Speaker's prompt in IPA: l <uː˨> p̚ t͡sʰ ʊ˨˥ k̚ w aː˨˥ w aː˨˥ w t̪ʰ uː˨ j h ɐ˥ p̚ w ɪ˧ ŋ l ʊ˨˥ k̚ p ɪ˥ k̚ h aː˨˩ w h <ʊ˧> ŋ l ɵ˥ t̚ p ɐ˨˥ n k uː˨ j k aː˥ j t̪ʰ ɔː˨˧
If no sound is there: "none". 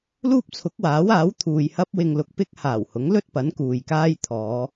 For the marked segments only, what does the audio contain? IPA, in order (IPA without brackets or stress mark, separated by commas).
uː˥, ʊ˨˥